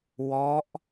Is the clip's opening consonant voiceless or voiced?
voiced